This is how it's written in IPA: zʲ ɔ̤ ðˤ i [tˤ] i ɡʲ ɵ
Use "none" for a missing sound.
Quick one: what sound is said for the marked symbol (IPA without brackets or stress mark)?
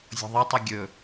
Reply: tˤ